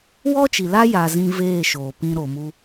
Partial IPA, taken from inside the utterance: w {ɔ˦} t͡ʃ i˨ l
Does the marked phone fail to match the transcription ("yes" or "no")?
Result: no